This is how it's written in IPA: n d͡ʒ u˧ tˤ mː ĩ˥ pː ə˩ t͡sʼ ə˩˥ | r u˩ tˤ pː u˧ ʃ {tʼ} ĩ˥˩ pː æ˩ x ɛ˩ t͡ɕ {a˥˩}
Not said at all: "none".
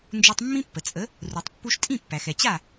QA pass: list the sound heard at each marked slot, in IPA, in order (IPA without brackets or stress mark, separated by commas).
tʼ, a˥˩